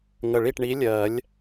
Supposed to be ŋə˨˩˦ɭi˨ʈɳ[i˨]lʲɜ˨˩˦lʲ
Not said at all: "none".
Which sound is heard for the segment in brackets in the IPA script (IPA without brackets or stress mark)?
i˨˥